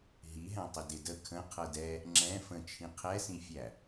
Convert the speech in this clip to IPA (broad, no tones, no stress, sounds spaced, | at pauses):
ɦ i ɦ æ̃ tˤ ɪ d ɪ d ə kʰ ə̃ qʰ ɤ d ɛ | ŋ͡ǁ ɛ̃ f ə̃ t͡ʃʰ ĩ qʰ ɛ s ĩ fʲ æ